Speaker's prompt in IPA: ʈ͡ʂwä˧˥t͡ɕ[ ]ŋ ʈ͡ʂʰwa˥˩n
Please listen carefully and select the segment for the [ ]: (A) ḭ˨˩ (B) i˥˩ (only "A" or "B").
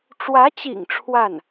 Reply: A